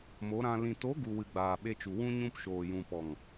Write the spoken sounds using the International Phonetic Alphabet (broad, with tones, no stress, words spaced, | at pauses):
mo˨˦ɾã˧ lĩ˨to˨˦ ɡu˨wɨ˨ ɡ͡baː˨ɓe˧t͡ʃu˨ wũ˧ɲũ˧pʃoː˨ jũ˨pɔ˨ŋ